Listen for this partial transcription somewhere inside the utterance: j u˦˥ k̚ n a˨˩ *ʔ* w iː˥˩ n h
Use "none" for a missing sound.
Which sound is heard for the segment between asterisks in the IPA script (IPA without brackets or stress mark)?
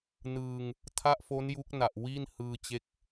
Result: ʔ